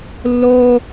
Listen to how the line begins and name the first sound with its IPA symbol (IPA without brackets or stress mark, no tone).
lː